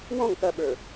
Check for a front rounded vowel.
absent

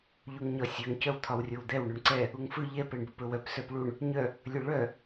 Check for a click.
present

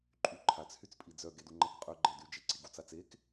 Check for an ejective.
present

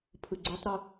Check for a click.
present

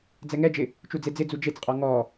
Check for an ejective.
present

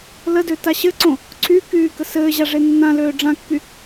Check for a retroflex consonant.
present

